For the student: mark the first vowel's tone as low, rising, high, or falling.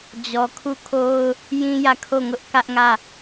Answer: low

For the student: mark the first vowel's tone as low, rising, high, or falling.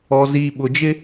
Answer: low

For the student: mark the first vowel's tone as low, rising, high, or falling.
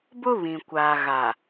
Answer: high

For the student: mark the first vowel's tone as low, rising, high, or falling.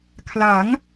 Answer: rising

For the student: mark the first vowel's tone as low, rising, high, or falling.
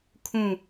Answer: falling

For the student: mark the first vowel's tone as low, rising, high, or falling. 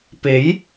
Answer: rising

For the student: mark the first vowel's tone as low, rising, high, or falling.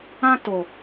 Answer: high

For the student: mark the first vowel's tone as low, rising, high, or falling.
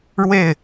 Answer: falling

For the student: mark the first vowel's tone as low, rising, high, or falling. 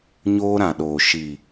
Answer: high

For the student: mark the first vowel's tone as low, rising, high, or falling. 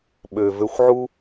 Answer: low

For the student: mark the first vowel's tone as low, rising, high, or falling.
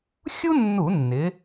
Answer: high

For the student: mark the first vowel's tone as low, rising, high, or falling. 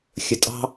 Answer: low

